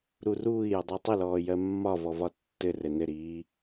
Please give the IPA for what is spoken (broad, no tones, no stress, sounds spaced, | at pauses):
ɾ u r uː i̯ j ə dˤ u tˤ ə l ɔː j ɜ mː ɒ v ɔ v ɒ tː ɘ r ɘ n ɘ ɾ iː